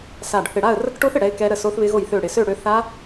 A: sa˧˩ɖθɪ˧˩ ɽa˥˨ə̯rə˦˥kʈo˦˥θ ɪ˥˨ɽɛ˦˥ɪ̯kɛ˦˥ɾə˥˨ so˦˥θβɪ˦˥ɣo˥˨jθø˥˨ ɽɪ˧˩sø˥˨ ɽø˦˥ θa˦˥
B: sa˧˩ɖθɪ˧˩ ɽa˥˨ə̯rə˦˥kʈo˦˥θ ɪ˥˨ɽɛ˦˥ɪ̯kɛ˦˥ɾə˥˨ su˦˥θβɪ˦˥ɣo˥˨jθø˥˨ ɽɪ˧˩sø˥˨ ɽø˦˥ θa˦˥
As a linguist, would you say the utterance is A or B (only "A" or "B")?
A